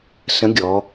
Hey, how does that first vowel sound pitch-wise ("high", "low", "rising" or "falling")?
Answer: rising